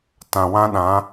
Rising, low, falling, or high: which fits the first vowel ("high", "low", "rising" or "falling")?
low